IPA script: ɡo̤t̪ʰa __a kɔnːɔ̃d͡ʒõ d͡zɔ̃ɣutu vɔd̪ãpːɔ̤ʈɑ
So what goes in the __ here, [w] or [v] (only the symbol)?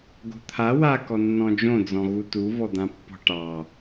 w